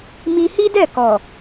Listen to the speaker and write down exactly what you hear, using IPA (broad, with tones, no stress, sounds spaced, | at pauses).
m i˧ h i˦ d ɛ˦˨ k ɔ˨